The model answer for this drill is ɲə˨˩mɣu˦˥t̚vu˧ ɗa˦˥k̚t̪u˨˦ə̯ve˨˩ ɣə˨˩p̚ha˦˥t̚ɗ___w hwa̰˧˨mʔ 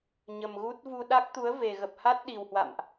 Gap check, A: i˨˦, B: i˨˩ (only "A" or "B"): B